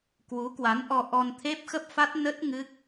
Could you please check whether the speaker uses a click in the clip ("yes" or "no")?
no